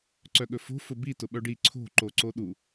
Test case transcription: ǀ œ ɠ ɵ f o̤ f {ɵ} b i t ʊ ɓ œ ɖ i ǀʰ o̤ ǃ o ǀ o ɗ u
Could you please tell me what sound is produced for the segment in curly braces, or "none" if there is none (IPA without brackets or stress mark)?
ʊ